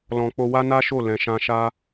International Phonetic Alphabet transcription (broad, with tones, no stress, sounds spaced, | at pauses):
l ɔ̃˧ k͡p o˧ w a˦ n a˦ ʃ o˦˨ l ɛ̃˧ ʃ ã˦ ʃ a˦